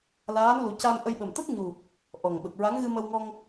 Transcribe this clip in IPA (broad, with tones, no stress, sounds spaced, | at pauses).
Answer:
l aː˧˥ n l u˨˩˦ c a˧ m ʔ ə˧ j ɓ ə˨˩ m t̪ ə˦˥ k̚ ɲ u˨˩ | ʔ ɔ˨˩ ŋ ɓ ə˨˩ k̚ ɹ a˧˥ ŋ ɣ ɨ˧ m ə˧ w ŋ ɔ˧ ŋ